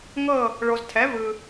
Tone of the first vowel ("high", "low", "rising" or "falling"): falling